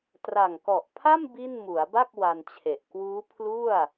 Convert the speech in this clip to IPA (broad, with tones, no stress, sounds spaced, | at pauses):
t r a˨˩ ŋ k ɔ˨˩ ʔ pʰ a˥˩ m b i˥˩ n m u˩˦ a̯ b a˥˩ k̚ w a˧ n t͡ɕʰ e˨˩ ʔ k w uː˦˥ pʰ l u˥˩ a̯